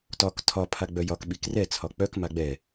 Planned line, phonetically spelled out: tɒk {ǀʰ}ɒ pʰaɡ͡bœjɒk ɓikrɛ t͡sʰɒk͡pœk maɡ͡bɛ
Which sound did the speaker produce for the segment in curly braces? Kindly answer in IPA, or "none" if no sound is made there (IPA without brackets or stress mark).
tʰ